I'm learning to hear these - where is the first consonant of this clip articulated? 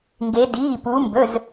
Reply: velum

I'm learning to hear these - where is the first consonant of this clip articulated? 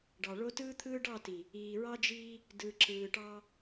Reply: retroflex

